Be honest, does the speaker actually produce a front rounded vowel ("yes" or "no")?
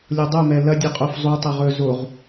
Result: no